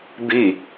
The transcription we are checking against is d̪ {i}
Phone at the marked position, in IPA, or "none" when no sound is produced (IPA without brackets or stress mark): i